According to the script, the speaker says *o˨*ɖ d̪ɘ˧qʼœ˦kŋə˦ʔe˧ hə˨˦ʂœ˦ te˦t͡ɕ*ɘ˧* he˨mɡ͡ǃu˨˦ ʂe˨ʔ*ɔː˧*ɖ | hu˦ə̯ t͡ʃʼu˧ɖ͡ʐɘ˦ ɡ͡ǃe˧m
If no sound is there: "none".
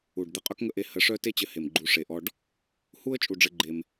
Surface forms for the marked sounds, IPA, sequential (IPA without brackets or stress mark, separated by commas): u˨, ɘ˧, ɔ˧